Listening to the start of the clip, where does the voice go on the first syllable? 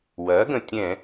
rising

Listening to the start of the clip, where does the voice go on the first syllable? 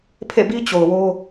falling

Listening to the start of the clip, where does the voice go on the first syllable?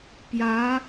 rising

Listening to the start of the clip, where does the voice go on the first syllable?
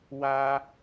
high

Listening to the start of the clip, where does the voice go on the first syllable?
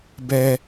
low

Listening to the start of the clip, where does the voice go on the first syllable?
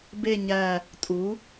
falling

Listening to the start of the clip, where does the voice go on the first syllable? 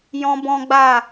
high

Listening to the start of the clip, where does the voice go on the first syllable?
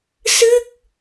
falling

